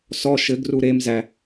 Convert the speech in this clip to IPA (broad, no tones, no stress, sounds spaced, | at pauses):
s ɔ ʃ ɘ ɡ r u ɾ e m z æ